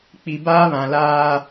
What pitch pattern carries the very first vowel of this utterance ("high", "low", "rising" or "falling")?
low